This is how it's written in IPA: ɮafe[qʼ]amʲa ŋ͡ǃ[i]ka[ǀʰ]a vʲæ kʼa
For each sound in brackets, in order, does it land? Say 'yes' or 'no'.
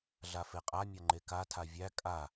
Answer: yes, no, no

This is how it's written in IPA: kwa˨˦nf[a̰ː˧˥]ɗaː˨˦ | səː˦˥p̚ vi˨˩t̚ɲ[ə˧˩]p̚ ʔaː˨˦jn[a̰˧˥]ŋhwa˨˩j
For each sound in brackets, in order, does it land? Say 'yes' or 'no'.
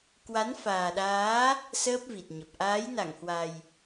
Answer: no, no, no

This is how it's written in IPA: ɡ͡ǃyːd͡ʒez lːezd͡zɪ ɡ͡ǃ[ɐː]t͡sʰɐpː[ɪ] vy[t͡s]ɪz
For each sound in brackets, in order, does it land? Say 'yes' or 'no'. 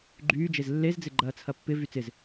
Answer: yes, yes, yes

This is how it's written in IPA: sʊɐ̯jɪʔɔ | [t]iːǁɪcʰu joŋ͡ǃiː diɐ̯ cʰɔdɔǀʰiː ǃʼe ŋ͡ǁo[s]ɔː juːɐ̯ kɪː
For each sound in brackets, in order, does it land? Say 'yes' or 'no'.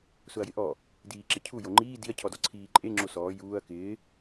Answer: no, yes

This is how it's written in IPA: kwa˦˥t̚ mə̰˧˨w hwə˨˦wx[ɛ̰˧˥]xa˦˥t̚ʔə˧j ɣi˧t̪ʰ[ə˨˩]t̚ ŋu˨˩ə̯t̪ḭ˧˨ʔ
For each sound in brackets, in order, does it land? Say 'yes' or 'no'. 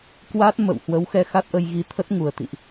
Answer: no, no

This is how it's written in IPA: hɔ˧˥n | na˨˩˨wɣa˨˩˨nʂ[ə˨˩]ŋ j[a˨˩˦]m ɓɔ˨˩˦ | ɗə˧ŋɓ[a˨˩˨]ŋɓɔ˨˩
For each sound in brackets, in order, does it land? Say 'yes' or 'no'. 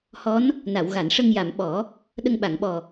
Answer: no, no, yes

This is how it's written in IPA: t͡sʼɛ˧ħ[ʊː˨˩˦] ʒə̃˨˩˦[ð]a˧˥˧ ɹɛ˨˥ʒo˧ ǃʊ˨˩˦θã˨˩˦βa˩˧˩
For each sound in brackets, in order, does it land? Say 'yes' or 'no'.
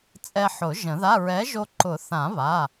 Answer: no, yes

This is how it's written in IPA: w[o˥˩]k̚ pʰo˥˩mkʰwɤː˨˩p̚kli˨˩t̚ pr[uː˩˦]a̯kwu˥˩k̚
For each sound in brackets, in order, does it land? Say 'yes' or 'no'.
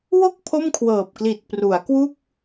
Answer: yes, no

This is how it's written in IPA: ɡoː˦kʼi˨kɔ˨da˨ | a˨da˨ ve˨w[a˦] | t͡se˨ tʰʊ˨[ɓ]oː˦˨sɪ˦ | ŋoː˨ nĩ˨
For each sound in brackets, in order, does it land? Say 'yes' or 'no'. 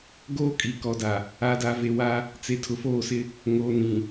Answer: yes, no

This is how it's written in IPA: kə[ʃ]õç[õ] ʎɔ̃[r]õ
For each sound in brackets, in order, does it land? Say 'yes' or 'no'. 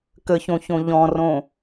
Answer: no, yes, yes

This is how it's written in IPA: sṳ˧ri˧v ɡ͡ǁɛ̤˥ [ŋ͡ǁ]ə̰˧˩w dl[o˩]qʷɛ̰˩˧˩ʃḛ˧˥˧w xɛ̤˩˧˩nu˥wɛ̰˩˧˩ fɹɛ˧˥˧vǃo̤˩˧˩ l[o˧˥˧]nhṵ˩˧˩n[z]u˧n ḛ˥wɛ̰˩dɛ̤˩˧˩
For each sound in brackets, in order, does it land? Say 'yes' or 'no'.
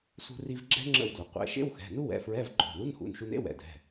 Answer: yes, yes, no, no

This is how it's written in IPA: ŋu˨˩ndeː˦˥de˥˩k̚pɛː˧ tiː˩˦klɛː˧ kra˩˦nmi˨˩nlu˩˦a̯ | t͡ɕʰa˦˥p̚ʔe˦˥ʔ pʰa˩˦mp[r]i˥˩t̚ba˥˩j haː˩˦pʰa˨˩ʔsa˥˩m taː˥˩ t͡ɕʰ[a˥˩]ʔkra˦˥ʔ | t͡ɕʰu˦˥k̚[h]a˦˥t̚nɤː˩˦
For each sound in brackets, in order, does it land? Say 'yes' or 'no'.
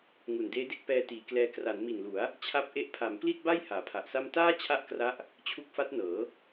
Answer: no, yes, no

